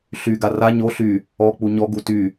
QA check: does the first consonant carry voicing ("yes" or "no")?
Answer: no